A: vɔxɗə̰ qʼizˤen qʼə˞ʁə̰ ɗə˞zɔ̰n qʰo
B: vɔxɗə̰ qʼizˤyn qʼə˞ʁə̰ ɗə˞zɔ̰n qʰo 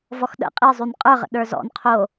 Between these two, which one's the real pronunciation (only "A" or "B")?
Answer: B